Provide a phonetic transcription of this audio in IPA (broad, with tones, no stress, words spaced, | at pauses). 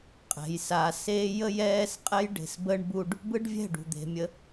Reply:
qʼɛ̤˨j sa˨seː˦ jə˦jɛː˦s qʼɛ˦jɖe̤˨s bə˦ɳbu˦ɖ | bɯ˦ɖvʲɛ̤˦˨ɖṳ˨ d̪e̤˨mʲə˦